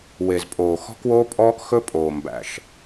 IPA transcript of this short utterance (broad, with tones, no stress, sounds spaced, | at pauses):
w e˨ z pʼ oː˨ x ɔ̤˦ k w oː˦ pʼ ɔː˦ k x ɵ˦ pʼ oː˨ m b æ̰˨ ʃ